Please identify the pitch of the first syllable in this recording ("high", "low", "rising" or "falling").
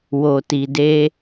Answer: low